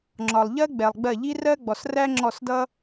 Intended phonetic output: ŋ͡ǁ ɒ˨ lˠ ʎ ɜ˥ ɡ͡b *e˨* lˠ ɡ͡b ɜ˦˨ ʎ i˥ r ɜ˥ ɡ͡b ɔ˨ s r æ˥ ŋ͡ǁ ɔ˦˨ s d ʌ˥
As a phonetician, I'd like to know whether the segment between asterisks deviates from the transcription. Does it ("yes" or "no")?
yes